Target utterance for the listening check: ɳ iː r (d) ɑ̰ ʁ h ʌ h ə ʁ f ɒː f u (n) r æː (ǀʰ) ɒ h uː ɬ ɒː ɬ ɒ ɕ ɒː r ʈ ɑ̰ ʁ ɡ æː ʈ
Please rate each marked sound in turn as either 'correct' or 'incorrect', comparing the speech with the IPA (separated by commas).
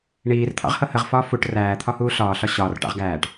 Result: incorrect, incorrect, incorrect